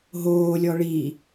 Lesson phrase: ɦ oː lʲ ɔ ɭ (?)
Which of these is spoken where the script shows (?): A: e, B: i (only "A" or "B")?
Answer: B